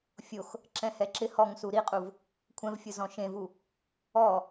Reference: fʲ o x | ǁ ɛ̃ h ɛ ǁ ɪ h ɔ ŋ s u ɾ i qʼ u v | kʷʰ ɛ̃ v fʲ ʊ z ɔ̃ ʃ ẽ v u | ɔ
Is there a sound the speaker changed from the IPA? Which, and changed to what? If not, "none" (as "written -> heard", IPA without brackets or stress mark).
none